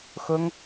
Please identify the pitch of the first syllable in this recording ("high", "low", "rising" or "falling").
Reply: high